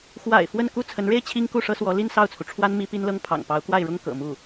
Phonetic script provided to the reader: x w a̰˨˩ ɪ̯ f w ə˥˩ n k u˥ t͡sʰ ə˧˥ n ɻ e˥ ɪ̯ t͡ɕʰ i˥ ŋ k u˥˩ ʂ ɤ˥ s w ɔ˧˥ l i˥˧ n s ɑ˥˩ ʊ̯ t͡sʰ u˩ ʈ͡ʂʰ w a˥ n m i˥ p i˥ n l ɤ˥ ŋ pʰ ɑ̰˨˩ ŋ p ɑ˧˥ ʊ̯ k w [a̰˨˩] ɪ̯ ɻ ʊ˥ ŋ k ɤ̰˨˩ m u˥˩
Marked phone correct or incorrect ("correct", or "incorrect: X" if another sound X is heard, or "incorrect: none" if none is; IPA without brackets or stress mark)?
incorrect: a˥˩